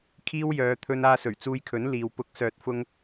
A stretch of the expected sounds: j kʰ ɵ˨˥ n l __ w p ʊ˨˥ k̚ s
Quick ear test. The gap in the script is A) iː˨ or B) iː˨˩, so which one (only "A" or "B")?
A